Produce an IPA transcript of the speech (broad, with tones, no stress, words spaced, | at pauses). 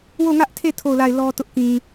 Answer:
wo˦˨ŋä˦ʔtʰe˦˨ tʰo˦˨ʊ̯la˦˨ɪ̯ lɔ˦tʊ˦ʔ kĩ˨